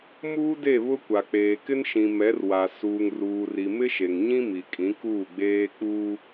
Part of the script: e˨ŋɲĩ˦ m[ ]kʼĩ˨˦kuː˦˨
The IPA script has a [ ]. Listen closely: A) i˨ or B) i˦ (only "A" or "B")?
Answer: A